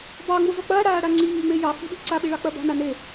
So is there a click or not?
yes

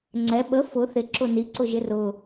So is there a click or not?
yes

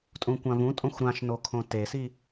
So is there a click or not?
no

